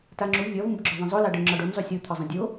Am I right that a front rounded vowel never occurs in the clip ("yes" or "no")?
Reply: yes